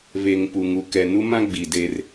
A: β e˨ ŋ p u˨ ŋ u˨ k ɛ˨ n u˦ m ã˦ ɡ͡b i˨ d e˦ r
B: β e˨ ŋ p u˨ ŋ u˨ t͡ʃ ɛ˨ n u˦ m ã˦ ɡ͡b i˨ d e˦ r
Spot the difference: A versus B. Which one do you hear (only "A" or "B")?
A